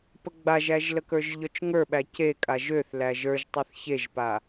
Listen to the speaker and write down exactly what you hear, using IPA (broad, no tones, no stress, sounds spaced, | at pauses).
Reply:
p ə ɡ͡b a ʒ æ ʒ l ə k ə˞ ʒ ʎ ɔ t͡ʃ ŋ ə˞ ɓ æ c e kʼ a ʒ ø θ l æ ʒ ə˞ ʒ tˤ e θ ç e ʒ p a